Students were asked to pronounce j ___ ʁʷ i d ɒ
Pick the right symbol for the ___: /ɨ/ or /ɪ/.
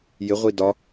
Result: ɪ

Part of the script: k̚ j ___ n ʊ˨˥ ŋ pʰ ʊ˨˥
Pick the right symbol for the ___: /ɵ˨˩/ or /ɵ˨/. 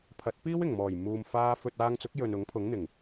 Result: ɵ˨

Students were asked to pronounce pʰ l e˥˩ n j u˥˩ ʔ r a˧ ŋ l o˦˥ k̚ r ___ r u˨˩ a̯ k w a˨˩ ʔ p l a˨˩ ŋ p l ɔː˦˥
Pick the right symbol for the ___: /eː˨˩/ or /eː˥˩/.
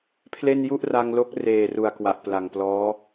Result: eː˨˩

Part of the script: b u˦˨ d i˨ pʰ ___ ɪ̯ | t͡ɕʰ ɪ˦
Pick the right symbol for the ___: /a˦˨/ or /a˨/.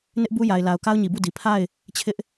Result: a˦˨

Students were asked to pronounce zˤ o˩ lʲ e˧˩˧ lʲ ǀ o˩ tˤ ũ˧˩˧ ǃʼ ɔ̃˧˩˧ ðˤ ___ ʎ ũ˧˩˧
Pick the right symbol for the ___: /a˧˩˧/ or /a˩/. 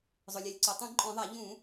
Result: a˧˩˧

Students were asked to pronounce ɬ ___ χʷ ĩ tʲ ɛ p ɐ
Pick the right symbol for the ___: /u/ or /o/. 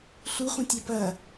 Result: u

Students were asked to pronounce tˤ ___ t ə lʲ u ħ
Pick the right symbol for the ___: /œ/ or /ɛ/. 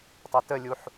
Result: ɛ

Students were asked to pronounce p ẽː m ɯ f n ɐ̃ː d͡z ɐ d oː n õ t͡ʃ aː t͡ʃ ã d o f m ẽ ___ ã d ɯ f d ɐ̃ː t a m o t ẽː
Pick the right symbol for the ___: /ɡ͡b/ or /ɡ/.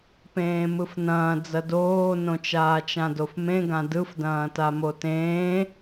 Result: ɡ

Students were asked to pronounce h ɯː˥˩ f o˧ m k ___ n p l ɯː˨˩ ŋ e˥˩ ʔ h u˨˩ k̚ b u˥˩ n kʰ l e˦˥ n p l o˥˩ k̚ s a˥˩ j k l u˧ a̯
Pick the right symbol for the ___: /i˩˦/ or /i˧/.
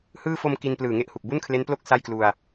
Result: i˧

